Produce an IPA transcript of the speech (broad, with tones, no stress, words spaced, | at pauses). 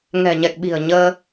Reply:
ŋɛ̤˨˩ɲɛ˨˩k̚ɓi̤˨˩ə̯ ɲəː˧